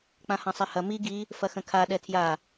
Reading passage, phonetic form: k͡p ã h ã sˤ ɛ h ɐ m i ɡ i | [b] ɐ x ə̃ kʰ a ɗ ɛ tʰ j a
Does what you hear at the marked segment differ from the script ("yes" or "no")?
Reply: yes